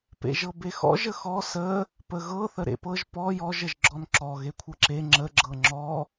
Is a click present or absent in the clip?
present